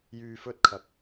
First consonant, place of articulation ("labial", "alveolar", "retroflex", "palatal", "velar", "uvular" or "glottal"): palatal